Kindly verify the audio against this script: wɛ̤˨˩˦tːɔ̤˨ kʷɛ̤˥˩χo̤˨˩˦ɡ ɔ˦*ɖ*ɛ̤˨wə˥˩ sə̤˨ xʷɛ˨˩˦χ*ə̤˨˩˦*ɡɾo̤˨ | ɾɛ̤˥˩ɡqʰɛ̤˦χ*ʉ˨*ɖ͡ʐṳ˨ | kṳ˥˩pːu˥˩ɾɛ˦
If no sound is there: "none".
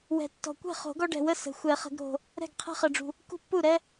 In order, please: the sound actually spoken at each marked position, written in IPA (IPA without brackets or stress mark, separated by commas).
ɖ, ə̤˨˩˦, ə˨